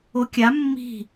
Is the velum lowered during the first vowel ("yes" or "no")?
no